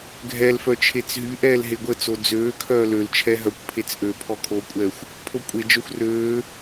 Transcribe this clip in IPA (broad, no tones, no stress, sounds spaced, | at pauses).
ɡʱ ɛ l f œ t͡ʃʰ e t͡s ɦ y ʔ ɛː l ɦ e ɡʷ ə t͡s o d͡z øː kʰ œː l ø l t͡ʃʰ ɛ ɦ œ kʷ pʰ e t͡s ʔ ø pʰ ɔ kʰ o kʷʼ ɛː xʷ | pʰ o kʷʼ e d͡ʒ œ xʷ r øː